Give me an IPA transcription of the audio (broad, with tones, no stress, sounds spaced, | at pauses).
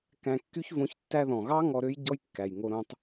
k æ̃˧ kː y˦ ç v õ˧ ç tː æ˧ ð ɔ̃˨ ɣ ɑ˦ ŋ ɔ˧ ɾ ø˦ j ɟ ɔ˦ j kː æ˨ j ŋ o˧ ɾ õ˧ tˤ